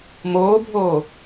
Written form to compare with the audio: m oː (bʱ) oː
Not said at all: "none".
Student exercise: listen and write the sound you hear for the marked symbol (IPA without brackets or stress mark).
bʱ